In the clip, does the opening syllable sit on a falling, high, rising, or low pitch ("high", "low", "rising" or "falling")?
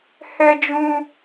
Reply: high